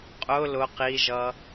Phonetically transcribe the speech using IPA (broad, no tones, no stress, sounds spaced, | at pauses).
qʼ ʊ l ʊ q i ʒ ʌ